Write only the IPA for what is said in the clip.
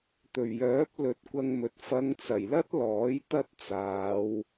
t̪ɵ˨˩ɥjœː˨˥p̚ lɵ˨˥t̚kʷɐ˧ŋmɵ˨t̚ fɐ˨˧ŋt͡sɐ˨˩jlɐ˥t̚ lɔː˨˥jt̪ɐ˥t̚t͡saː˨˧w

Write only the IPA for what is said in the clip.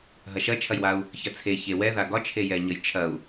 ɦɐʃɐt͡ʃʰɐjwau̯ | çɐt͡sʰe çe wɛða ɡɒt͡ʃʰejɛɲəj t͡ʃʰɐu̯

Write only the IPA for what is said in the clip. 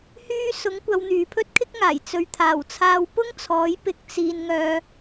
hyː˥ sʊ˨˥ŋ kʷɐ˨˧wn̪yː˨ pʰɵ˥t̚kʰɪ˥k̚ŋaː˨˩j t͡sɵ˨ɥt̪ʰaː˨˩wt͡sʰaː˧w pʊ˥ŋt͡sʰɔː˨˥jpɪ˧k̚ t͡siː˨nŋœː˨

